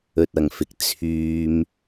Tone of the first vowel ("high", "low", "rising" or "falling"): low